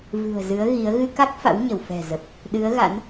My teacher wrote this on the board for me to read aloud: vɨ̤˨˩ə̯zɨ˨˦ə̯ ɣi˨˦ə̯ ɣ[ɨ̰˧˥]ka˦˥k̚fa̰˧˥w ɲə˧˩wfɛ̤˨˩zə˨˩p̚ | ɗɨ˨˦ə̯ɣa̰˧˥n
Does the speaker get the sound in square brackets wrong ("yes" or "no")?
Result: yes